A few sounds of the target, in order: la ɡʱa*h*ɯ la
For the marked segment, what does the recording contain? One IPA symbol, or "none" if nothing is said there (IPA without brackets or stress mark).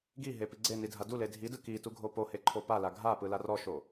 p